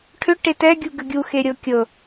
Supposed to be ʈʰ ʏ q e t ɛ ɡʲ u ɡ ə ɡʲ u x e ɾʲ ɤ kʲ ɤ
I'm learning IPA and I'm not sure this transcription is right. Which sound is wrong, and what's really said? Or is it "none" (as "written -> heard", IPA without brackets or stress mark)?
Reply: q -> ʈ